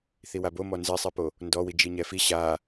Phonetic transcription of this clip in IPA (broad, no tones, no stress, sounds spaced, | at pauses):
θ i w a b o m ɔ n z e sˤ i p o | n d ɔ w i d͡ʒ i ɲ ɛ f i ɕ a